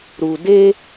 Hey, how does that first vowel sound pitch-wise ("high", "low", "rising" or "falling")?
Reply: low